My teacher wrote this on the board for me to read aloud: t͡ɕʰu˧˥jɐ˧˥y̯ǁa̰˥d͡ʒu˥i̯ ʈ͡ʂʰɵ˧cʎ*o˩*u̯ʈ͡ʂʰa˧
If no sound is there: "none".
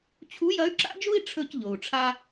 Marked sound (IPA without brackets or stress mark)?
o˩